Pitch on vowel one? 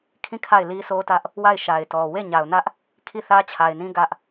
falling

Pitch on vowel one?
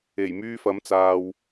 low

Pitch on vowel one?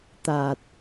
low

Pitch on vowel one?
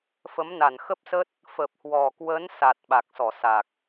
rising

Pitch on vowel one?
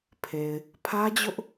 low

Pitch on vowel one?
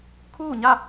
falling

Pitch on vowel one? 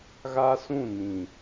high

